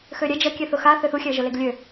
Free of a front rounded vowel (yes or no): no